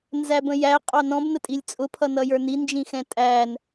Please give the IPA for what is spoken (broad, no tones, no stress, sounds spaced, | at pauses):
n z æ b ə̃ j æ qʼ ɑ n ɔ̃ b n ə tʼ i lʲ t͡sʼ ʊ pʰ ʌ n ʌ j ə˞ n i n d͡ʒ ĩ x ɛ̃ tʼ æ n